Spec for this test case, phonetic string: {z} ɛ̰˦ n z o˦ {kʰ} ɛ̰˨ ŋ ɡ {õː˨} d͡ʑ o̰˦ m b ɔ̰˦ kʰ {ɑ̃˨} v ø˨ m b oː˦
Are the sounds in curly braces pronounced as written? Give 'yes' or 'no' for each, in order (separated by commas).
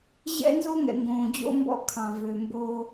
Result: no, no, yes, yes